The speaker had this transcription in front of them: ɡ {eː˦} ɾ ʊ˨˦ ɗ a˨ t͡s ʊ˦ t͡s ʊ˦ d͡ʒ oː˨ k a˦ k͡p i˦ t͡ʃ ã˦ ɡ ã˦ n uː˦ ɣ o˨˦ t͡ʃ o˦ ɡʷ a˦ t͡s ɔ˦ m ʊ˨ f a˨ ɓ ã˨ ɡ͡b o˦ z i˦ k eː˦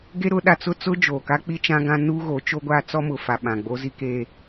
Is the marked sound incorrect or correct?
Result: incorrect: e˦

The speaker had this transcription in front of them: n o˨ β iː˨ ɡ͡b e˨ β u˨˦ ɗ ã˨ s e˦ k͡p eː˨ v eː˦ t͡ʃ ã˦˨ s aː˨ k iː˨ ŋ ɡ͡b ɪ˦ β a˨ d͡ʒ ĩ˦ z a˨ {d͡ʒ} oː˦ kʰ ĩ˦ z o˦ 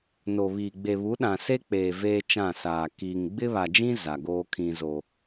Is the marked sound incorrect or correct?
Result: incorrect: ɡ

